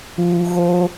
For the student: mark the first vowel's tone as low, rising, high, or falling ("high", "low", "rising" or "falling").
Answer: low